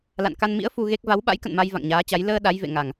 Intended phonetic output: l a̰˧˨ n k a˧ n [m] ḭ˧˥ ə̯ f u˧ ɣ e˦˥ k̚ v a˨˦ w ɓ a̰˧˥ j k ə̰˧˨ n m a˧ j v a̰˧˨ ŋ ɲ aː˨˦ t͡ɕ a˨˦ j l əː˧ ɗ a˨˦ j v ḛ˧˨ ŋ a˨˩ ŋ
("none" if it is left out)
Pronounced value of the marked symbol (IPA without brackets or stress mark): m